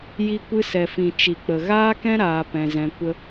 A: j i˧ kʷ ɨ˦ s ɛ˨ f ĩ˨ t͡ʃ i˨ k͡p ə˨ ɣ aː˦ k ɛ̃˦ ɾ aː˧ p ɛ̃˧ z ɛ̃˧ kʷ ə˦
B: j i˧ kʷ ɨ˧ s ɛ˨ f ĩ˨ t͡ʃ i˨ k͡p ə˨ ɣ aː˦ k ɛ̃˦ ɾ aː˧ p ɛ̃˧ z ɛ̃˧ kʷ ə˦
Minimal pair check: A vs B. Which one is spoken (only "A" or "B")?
B